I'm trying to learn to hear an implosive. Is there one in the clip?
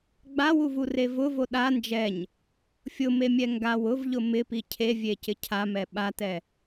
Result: yes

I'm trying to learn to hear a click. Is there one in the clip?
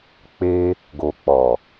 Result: no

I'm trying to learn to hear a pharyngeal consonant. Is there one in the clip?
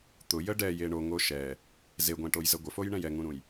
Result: no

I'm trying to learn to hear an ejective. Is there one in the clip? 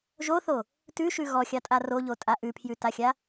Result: yes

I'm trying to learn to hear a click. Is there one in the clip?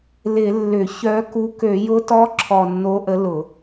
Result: yes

